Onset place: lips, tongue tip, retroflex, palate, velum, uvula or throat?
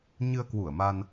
palate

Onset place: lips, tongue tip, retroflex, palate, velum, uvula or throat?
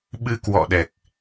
lips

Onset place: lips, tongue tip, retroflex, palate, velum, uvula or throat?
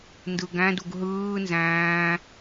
tongue tip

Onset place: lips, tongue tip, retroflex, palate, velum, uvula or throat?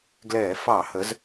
velum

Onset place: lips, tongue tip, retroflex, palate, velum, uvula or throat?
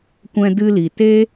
velum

